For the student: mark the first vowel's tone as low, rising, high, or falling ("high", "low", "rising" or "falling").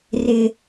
high